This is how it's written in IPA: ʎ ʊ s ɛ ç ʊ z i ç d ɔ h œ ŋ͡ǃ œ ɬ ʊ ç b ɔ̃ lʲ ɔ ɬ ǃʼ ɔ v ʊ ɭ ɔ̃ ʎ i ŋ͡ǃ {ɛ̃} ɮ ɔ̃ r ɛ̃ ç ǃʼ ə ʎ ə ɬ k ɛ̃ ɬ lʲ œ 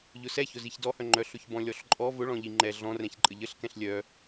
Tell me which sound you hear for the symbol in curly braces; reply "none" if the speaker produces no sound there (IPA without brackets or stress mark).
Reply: ɛ